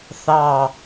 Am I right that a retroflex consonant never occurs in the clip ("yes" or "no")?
yes